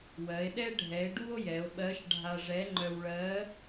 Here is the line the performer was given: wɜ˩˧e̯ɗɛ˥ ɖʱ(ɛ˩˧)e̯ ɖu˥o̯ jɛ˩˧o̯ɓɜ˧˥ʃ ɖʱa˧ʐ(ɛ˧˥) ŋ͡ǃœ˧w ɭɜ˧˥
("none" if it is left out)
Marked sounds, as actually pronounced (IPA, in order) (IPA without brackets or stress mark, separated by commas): ɛ˩˧, ɛ˧˥